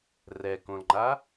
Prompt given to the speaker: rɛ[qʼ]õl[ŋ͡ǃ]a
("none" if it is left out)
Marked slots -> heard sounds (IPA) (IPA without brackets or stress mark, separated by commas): k, ŋ͡ǃ